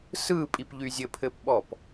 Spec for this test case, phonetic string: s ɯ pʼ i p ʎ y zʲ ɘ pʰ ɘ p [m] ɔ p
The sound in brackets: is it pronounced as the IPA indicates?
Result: no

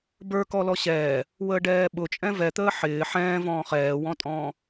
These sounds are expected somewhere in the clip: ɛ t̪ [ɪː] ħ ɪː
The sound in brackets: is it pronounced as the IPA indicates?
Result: no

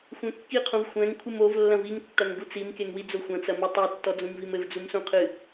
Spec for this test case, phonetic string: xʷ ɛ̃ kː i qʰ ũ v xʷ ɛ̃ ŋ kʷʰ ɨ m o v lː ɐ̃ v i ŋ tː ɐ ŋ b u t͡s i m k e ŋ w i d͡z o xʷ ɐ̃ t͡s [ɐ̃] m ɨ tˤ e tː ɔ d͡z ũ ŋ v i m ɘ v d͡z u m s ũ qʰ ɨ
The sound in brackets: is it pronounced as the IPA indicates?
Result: no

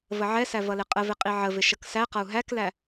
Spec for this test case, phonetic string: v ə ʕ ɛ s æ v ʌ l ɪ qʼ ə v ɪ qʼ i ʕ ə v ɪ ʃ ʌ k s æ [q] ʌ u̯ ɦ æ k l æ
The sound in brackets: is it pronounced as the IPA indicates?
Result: yes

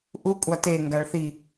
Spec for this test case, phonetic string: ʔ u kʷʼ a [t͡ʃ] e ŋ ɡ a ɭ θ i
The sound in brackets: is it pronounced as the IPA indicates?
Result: no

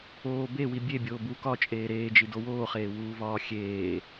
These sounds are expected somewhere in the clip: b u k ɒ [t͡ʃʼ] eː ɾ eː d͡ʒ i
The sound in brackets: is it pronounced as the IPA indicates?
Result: yes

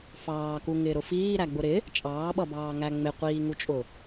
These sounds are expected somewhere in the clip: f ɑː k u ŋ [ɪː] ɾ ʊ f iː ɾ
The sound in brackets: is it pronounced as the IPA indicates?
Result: yes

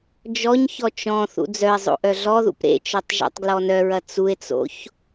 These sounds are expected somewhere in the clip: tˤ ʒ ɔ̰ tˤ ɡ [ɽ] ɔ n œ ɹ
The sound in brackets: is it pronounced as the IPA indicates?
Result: no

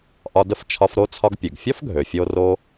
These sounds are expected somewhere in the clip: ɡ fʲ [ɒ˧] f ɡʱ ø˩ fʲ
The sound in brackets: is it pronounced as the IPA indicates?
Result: no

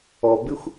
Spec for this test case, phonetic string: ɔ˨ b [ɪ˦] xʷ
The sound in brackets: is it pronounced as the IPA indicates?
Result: yes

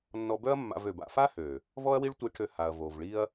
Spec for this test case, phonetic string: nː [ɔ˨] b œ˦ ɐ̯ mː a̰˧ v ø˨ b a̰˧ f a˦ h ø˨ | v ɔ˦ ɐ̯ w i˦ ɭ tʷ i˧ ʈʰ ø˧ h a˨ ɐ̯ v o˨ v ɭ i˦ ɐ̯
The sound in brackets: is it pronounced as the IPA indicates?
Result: no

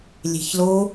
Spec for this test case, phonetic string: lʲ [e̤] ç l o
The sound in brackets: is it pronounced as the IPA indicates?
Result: yes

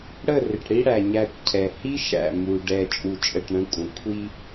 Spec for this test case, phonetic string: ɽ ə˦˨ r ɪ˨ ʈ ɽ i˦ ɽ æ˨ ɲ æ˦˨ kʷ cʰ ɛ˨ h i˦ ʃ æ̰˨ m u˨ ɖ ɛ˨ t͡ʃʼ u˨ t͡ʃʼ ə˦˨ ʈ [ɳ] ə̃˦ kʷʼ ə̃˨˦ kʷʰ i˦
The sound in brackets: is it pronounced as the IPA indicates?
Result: yes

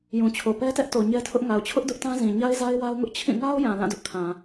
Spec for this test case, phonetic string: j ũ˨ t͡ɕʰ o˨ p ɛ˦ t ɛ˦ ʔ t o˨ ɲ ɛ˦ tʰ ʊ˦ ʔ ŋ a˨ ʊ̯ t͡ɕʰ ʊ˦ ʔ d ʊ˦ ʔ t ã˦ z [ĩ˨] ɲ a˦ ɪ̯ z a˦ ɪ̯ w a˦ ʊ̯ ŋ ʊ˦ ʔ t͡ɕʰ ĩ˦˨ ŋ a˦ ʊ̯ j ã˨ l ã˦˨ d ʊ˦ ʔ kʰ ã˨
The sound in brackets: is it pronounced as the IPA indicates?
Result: yes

